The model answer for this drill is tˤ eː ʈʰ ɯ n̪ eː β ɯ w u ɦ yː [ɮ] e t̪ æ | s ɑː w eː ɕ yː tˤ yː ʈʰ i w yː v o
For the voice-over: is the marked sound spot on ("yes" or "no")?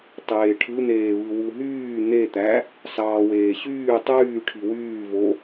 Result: no